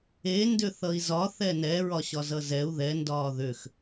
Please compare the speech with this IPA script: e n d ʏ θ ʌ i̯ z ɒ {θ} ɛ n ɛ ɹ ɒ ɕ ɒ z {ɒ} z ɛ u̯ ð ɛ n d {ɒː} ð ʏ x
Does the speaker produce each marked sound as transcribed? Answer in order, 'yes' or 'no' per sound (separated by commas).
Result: yes, no, yes